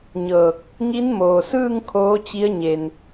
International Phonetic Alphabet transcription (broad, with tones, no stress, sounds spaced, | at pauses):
ɲ ɤː˧˩ k̚ | ŋ i˧˥ n m oː˩ s ɯː˥˨ ŋ kʰ oː˧˥ t͡ɕ i˧˥ ə̯ ɲ e˩ n